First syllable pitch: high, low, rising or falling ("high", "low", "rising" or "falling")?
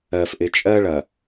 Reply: low